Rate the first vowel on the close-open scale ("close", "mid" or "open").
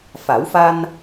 open